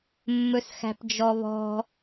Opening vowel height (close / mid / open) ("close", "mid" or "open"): mid